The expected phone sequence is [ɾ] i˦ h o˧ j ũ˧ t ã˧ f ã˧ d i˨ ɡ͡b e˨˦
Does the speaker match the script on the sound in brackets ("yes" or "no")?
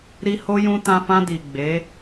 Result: yes